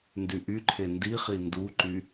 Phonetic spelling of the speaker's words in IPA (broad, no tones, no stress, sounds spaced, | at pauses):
n d y ʔ y ǃʰ e n d i χ i n d u ǃ y